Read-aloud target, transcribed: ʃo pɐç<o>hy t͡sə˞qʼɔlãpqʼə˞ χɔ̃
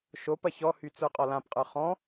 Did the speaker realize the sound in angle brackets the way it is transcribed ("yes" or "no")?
no